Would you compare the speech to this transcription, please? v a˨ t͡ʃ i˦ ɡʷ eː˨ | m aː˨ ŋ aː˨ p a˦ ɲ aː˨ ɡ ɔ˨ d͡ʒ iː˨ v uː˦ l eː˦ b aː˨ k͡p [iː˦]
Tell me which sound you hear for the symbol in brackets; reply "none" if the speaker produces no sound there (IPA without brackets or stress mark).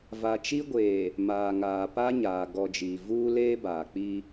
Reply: i˦